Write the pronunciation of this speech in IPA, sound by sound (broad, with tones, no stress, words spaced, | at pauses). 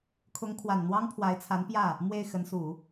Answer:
kʰʊ˧˥ŋkʰwa˨˩n n̪wɑ˥ŋpʰwa˧˥ɪ̯t͡sʰa˧˥npjä˥˩ | mwe˥˩ɪ̯ xə˧˥nsu˨˩˦